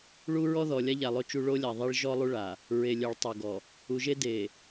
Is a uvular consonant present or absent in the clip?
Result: absent